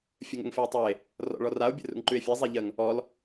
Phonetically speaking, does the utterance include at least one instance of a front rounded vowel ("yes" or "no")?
no